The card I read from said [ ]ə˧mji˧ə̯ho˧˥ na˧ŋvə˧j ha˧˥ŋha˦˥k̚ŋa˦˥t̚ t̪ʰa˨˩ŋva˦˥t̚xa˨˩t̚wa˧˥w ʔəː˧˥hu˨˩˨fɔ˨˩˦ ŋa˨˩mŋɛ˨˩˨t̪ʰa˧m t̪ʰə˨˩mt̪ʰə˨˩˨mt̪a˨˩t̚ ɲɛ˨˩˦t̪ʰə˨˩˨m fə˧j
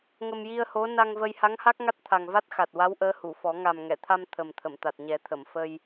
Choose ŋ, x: ŋ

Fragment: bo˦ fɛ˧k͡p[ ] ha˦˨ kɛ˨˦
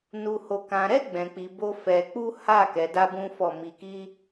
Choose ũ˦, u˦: u˦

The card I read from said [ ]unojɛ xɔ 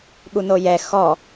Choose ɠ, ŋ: ɠ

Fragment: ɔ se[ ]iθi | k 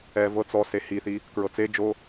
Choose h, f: h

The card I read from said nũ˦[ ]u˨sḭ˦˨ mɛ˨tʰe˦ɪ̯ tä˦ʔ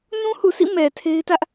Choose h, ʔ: h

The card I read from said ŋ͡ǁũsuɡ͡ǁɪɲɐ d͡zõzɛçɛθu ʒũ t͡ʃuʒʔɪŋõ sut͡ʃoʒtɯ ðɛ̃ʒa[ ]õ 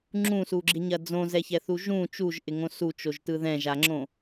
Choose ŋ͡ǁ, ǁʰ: ŋ͡ǁ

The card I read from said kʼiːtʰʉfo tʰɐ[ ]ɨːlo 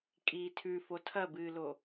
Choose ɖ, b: b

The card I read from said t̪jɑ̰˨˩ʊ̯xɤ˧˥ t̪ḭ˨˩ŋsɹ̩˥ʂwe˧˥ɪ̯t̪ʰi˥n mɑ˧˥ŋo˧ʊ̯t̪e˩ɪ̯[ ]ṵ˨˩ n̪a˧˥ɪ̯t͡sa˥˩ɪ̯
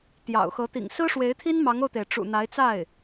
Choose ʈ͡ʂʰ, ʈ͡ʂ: ʈ͡ʂ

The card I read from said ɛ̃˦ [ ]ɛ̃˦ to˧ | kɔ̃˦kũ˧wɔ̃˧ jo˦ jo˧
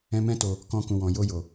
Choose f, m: m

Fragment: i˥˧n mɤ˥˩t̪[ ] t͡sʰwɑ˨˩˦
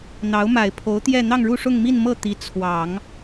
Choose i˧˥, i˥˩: i˧˥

